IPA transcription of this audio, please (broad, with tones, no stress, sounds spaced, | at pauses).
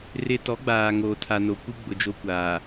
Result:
r ɪ˦ t ɔ˨˦ ɡ͡b aː˨ ŋ oː˨ tʰ a˨ n o˨ kʷ i˦ ɡ͡b ʊ˨ d͡ʒ o˦ kʷ aː˨